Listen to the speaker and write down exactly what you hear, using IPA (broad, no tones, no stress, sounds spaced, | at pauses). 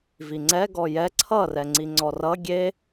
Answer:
v i ŋ͡ǀ ɛ ɡ ɔ j ɛ ǀʰ ʌ r ɛ ŋ͡ǀ i ŋ͡ǀ ɔ r ʌ ɡʲ e